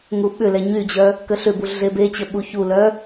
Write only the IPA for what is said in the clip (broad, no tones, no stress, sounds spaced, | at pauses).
ŋ u ɓ ʏ l ɛ ɲ y d͡ʑ œ | k ə ɬ ʏ b u ɮ e b e t͡ɕ ə ɓ u ç u l œ